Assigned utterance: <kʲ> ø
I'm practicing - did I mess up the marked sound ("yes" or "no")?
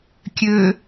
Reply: no